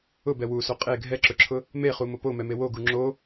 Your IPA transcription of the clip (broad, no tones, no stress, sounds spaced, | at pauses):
ʊ b ɛ w u s o qʼ e ɡʱ ɛ ǁ ʊ ǁʰ ʊ | m e χ u m ʊ p o m ɛ m e w o ɡ u ŋ͡ǁ o